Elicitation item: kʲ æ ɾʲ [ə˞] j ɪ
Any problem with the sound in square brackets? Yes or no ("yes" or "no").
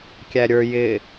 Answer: no